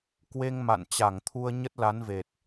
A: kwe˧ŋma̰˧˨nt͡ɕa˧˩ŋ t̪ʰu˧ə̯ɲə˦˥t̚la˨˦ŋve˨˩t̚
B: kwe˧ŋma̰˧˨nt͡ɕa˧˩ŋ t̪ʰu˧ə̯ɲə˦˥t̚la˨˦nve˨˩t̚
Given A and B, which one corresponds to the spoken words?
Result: B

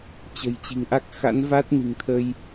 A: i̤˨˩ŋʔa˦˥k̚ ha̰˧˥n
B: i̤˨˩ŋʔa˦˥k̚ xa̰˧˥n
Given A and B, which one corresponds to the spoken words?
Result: B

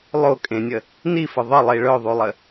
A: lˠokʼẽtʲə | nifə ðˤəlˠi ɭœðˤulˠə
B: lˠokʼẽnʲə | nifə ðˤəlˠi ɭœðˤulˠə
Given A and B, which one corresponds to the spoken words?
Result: B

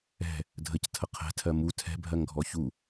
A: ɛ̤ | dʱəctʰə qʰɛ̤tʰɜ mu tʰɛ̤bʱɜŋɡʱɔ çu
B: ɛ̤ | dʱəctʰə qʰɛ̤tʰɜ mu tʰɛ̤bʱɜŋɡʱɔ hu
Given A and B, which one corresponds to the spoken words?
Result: A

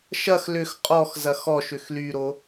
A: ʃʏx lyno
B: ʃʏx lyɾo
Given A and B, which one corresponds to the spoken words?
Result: B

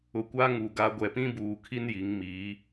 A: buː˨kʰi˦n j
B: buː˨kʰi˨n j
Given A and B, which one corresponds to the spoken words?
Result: A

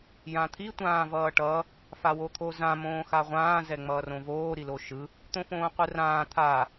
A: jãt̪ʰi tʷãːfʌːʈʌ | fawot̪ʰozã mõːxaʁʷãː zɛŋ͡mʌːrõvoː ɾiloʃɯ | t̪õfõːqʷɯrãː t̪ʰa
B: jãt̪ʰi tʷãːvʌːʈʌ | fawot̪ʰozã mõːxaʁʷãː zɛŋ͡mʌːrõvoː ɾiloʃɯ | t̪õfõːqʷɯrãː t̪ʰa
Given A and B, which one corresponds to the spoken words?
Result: B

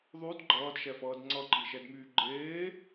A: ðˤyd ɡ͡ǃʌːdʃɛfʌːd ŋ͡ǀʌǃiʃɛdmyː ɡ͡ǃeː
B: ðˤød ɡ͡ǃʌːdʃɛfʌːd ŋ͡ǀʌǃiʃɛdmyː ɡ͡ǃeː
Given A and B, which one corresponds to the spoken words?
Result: A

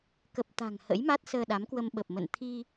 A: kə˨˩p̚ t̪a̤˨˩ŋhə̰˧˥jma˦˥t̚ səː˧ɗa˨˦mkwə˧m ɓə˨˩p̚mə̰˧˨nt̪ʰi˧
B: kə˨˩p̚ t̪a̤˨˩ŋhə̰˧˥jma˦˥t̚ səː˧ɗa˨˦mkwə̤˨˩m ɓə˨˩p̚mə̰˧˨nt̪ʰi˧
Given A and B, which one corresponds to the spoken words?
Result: A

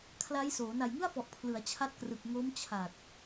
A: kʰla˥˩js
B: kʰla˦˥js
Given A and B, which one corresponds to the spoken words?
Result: B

